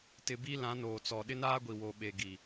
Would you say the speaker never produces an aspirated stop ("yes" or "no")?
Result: yes